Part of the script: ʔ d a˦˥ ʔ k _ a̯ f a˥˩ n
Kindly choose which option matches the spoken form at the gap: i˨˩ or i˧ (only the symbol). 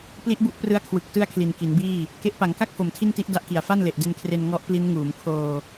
i˨˩